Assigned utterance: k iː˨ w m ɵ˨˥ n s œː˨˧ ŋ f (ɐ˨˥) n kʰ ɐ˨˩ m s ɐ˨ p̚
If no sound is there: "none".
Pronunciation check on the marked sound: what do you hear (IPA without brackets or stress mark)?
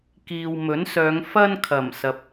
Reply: ɐ˥